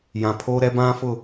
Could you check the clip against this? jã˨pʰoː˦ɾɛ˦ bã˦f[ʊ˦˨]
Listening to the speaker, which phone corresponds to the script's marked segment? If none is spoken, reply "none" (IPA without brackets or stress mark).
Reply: ʊ˦˨